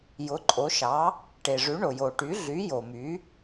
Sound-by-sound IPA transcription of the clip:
jʊ˩˥ǃʼo˩˥ʃɑ˩˥ | ʈe˩ʐʉ˩˥ ɳo˩jo˩ ʈy˩˥ɮy˩˥ jo˩my˩˥

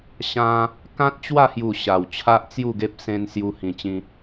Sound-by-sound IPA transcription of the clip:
ɕã˧ | kã˦t̚t͡ɕwa˥˧hju˨˩ ɕa˨˩wt͡ɕʰa˦ʔt͡sju˥˧ɡe˦p̚ sẽ˧n sju˧hĩ˨˩t͡ɕĩ˧

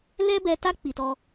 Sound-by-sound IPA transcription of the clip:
lɛ˦bɛ˧ta˦ k͡pi˧tɔ˦

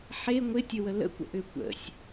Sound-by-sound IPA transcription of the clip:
ħe ŋʷɪtʲəwə lə̰kʷə̰ʔʏː kʷə̰sʲ

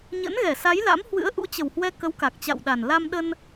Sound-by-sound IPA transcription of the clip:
ɲə̰˧˥nɣɛ˧˩sa˨˦jla̰˧˥m hwɨ̰˧˥ə̯ʔṵ˧˥t͡ɕə˨˩whwɛ˧ kə˨˦wka˨˩k̚t͡ɕa̰˧˨wɗa˨˩n la˧mɗə˧n

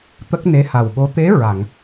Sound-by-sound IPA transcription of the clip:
t̪ə˦˥k̚ne˧˥ha˨˩wɓo˧˥ t̪e˧˥ ɹa˨˩˨ŋ

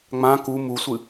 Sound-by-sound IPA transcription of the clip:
ŋ͡mã ku musʷɨ

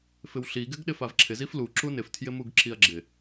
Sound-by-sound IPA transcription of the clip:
fɪwɬi ɡɪɡɗɪfavǁʰɪ ziflu ǁunɪf tʰjɪmuɡǁiɐ̯ɡ͡ǁɪ

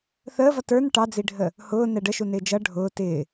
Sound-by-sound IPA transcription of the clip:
θəːvʌ tə˞n ʈɑd͡ziɖʱə | hʊːnɛ ɖəʃunɪː d͡ʒʌ ɖʱʊː tɪː

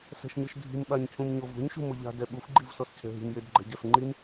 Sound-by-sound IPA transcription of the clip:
sɛ̤ʃɲɯʃdʱi̤m ɓaɲcʰũmɲovṳɲ ʃṳmoʎa̤ dɛɓuf ɡ͡ǃivsɔscʰɛ̤ɦi̤m jedɡ͡ǃɛ̤ɟɛf ŋ͡ǃim

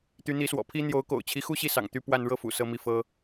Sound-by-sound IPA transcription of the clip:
t̪y˧˥n̪i˧˥swɔ̰˨˩ pʰi˥n̪jo˧˥ʊ̯ ko̰˨˩ʊ̯t͡ɕʰi˧˥xu˥˧ɕi˥˩ sɑ̰˨˩ŋt̪y˥˧pwa˥˧n ɻɤ˥˩fṵ˨˩ sɤ˥˧mi˥˩ fɤ˥

